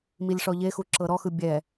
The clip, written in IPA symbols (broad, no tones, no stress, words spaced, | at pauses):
milʲʂɔʎexu ǁɤɾɔxɯ bʲɛ